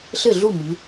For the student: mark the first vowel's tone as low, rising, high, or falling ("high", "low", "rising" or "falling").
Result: falling